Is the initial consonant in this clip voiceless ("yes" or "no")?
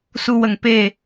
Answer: yes